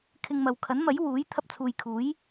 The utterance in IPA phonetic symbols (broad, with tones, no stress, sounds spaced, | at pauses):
kʰ ɪ˧ ŋ m ɐ˨ w kʰ ɐ˨˥ n m ɐ˨˥ j w uː˨˥ j t̪ʰ ɐ˧ p̚ t͡sʰ uː˨ j kʰ uː˨˥ j